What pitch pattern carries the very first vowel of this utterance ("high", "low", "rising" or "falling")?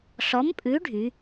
rising